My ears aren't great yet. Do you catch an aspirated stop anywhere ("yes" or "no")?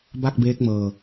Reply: no